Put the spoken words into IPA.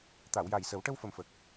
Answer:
t̪ a˨˩˨ w j a˨˩ j s ə˨˩˦ w ʈ ə˧ w f ə˨˩ m f ə˨˩ k̚

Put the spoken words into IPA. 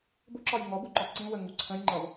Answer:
b ʊ ǁ ɒ j ŋ ɔ b u ǃ ɒ ǀ ĩ w ə ŋ u ǀʰ ə̃ j ŋ͡ǃ ʌ v

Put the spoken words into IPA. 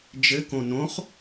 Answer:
d͡ʒ ɘ k õ n õ χ

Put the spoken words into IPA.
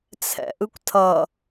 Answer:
t͡sʰ ɛ̰ ʔ ɯ kʷ tʰ ʌ

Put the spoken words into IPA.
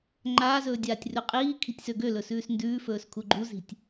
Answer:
ŋ͡ǃ aː z ɵː dʲ aː tʲ r ʉ qʼ iː kʰ i̤ tʲ s ø ɡ ø l ɵ s ʉː s n d ʉː f ɵː s kʰ u ɡ͡ǃ u z i̤ tʲ

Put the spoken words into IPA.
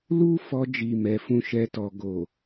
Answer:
l u˦ f ɔ˧ d͡ʒ i˨ m ɛ˨˦ f ũ˦ ʃ ɛ˦ t ɔ˧ ɡ o˨

